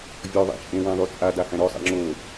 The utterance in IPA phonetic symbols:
vʲɔðˤa̰ t͡ʃʼẽ wæ̃ðˤʉt͡sʼada hæ̃ɾɔsˤa̰ ŋ͡ǁo

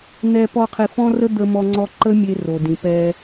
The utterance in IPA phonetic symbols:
n̪ɛ˧ pɔ˧qʰi˨ fɔ̃˦rə˦ d̪ə˧ mɔ˧ŋ͡ǀɔ˧ ǃə˦mʲe˧ ro˨dĩ˨pɛ˧

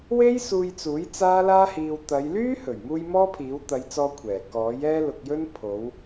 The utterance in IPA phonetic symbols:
we˥jsuː˧jt͡suː˨˥j t͡saː˥laː˥hiː˧w t̪ɐ˨˧jlyː˥hɵ˨˩ɥmuː˧j mɔː˥pʰiː˨˥w t̪ɐ˨˧jt͡sɔː˧ kʷʰɛː˨˩kɔː˨˥j ɛː˥lʊ˧k̚jɵ˥n pʰo˨˧w

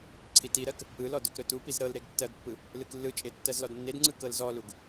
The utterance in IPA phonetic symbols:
ǀʰitiɾɜk | ɯlɔ dɵkɾɵtupiz ɾɤlɾeɡ tːɜɡpːɯ | lɯklːɯt͡ʃʼe tːɜzlɔdnːedŋ͡ǀɯ kɤlzɔluɡ

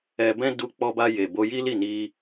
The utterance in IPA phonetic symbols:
ɛ˧ bɛ̃˦ du˧k͡pɔ˧ba˧ je˨bo˧ji˦li˦˨ ni˧

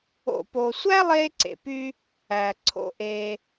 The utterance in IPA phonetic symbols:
o̰˨po˨sʷæ˦ lˠeː˦ǀḛ˨py˦ | æ˨ǀʰo̰˧ʔeː˧

